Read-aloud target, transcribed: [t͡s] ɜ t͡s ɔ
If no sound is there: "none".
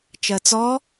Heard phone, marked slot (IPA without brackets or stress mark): t͡ʃ